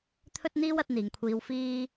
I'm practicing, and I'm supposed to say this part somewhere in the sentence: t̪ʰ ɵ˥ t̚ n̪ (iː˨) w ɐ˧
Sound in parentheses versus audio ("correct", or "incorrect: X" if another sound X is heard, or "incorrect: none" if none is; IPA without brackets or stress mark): incorrect: iː˥